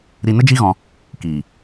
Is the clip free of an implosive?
yes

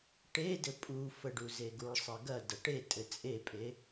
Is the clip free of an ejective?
no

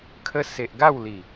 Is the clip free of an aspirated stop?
no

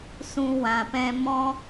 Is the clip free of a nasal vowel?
no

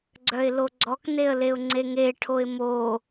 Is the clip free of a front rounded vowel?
no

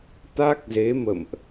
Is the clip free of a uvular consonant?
yes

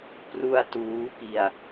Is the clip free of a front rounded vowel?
yes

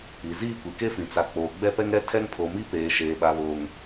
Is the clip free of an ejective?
yes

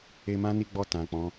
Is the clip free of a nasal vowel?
no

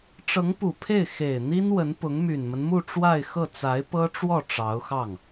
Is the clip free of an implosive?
yes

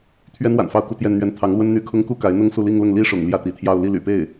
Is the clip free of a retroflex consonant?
no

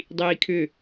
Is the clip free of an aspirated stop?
no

